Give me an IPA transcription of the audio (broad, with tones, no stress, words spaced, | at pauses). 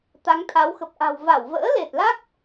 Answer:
t̪a˨˦ŋt̪ʰa˨˦w xə˨˩p̚ʔa̤˨˩w va˧˩wvə̰ː˧˥le˨˩t̚la˦˥k̚